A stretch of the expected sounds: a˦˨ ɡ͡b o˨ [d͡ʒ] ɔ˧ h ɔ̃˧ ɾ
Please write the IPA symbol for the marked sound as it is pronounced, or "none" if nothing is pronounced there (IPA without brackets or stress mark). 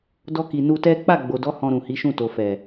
d